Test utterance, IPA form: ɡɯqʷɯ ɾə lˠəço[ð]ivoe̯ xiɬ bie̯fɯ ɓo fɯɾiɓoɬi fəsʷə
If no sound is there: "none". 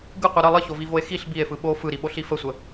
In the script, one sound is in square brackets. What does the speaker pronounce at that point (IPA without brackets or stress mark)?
v